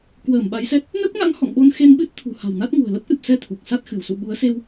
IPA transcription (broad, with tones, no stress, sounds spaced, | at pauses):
k w əː˧˩ m ɓ a˨˦ j s ɛ˦˥ t̚ | n ə˦˥ p̚ ŋ a̰˧˥ ŋ h ɔ̰˧˨ ŋ ɓ o˧ n x e˧ n ɓ ɨ˦˥ t̚ t̪ʰ ṳ˨˩ h a̤˨˩ w n a˦˥ t̚ ŋ ṳ˨˩ ə̯ l ə˦˥ p̚ ʔ ɨ˨˩ p̚ s ɛ˧ t̪ʰ u˨˩ k̚ s a˦˥ t̚ x ɨ˧˩ w s ṵ˧˨ ɓ u˨˦ ə̯ s e˧ w